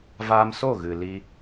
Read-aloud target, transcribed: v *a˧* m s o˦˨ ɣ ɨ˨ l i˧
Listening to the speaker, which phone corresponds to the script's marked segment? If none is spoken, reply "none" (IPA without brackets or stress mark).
aː˧